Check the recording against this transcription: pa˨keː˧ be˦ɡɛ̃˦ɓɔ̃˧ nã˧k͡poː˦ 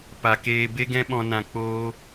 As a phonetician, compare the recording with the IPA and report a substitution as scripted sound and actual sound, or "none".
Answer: none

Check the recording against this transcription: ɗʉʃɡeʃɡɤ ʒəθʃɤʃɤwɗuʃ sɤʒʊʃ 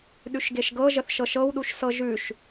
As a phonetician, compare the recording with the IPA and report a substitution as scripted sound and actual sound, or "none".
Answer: ʊ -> ʉ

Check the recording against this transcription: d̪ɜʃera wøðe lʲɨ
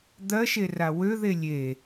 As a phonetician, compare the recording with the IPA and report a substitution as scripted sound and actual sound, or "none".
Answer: ɨ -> e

